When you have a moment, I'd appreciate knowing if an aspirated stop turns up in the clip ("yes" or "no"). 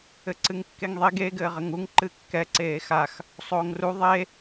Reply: no